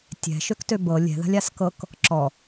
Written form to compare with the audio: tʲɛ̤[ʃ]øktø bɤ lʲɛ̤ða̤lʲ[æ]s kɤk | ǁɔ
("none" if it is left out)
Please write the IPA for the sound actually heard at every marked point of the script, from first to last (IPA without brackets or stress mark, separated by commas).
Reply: ʃ, a